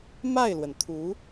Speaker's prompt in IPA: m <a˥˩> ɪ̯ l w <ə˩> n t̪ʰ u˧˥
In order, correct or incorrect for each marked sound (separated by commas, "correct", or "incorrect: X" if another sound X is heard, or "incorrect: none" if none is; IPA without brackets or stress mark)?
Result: correct, correct